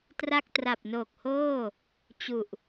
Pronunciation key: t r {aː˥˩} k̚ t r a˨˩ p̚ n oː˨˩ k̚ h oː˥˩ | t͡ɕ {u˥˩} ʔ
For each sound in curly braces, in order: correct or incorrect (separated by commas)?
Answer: incorrect, incorrect